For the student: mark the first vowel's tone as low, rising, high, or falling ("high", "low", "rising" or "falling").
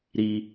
high